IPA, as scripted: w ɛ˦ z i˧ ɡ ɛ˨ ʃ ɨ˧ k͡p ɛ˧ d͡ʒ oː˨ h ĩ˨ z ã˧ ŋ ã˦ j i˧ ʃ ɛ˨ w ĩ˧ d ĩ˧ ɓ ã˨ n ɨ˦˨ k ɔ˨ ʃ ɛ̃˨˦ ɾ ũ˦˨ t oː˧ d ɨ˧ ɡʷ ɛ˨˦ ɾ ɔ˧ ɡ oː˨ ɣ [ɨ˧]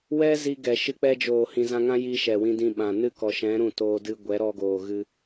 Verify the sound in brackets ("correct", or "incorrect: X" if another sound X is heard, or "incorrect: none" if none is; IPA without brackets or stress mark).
correct